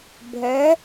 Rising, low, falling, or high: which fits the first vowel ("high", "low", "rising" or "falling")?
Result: rising